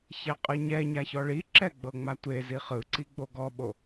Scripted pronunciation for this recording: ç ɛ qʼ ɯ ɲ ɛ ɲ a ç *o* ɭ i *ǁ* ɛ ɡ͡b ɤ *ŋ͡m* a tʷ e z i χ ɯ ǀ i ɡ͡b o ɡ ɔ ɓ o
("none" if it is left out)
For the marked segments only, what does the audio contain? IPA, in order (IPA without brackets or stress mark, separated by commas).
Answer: ɔ, ǁ, ŋ͡m